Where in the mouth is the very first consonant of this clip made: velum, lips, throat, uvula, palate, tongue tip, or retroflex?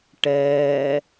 retroflex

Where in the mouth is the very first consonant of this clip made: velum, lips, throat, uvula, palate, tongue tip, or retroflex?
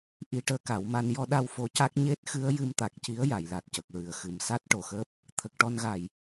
throat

